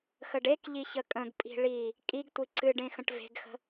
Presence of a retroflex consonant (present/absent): present